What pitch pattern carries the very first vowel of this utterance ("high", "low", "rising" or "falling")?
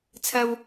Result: high